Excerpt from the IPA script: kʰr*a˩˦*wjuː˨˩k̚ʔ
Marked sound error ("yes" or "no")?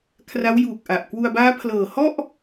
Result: yes